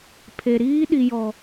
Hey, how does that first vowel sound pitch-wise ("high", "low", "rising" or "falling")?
low